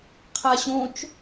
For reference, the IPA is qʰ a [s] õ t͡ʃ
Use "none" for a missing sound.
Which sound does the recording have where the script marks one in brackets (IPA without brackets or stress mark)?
ɕ